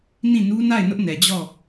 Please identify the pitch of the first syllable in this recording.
falling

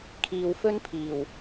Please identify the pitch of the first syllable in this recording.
low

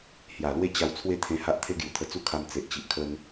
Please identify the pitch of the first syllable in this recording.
low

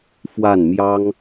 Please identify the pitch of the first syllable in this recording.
falling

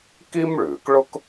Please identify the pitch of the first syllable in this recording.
high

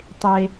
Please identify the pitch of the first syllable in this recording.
high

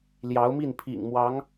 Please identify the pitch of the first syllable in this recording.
rising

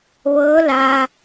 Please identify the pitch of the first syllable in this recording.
rising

